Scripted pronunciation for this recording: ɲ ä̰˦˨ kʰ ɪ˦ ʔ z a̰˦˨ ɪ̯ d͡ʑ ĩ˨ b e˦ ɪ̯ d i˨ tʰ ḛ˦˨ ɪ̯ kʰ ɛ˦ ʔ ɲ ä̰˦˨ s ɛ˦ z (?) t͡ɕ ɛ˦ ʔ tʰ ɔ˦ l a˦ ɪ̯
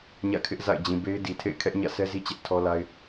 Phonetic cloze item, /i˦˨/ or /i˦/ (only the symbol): i˦